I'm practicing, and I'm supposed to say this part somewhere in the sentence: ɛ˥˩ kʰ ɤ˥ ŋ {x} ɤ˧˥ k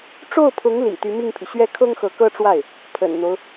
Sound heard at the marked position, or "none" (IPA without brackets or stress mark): x